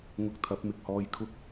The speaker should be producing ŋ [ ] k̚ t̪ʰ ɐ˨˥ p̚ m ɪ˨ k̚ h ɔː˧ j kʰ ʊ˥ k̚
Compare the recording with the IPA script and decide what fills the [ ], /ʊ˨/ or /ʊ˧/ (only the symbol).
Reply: ʊ˧